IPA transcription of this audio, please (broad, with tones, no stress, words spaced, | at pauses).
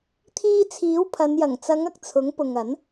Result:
t̪ʰiː˧t͡sʰiː˨˥wpʰɐ˨˧n jɐ˨˩ŋt͡sɐ˨˧ŋɐ˨k̚ t͡sʰʊ˨˥ŋpʊ˨ŋ ɐ˨˥n